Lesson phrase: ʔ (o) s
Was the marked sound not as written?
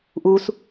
yes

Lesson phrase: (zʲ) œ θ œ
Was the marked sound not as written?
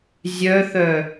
no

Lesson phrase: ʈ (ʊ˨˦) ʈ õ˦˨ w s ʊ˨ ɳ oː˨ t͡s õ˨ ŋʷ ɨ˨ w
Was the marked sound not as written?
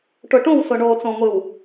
yes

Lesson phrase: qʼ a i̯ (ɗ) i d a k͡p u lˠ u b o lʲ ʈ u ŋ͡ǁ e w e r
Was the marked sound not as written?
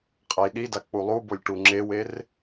no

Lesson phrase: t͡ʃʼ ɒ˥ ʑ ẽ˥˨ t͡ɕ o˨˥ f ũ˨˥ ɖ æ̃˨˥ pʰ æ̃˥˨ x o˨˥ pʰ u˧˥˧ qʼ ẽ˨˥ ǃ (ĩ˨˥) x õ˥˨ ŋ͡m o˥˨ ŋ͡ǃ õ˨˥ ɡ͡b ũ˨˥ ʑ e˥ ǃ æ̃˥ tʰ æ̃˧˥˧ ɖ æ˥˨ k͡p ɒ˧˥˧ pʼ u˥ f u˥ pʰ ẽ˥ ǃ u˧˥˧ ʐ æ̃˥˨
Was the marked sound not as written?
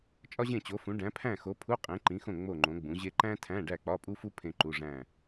no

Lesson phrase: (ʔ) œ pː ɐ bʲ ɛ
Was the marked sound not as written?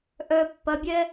no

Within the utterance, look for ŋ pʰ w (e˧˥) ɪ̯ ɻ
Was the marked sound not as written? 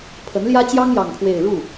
yes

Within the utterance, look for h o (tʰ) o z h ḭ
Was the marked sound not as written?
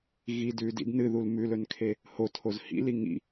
no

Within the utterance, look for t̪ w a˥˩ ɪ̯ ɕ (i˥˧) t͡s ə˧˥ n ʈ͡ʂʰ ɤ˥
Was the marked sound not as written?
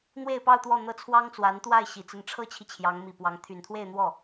yes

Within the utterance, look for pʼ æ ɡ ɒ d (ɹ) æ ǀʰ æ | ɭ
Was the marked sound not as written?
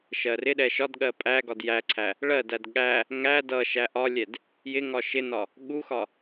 yes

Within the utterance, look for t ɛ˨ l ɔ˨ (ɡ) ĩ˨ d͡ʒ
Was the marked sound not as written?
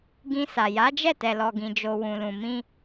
no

